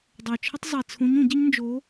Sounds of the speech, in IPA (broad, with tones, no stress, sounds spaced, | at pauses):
dˤ o˨˩ t͡ʃʰ ə˥ tˤ zˤ i˨˩ t͡sʰ ũ˧˥ ɲ ũ˧˩˧ ɟ ə˥ ɲ n d͡ʒ o˧˥